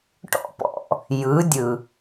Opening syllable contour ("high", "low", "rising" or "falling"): high